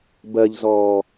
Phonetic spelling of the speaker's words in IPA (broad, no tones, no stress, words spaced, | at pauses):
bɜʎzɔː